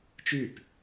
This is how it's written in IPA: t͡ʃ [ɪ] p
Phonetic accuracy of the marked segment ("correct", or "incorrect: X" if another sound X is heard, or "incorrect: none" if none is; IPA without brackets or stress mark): incorrect: y